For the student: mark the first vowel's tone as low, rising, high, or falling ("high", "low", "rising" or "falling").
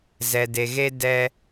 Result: low